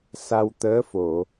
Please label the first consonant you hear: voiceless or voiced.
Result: voiceless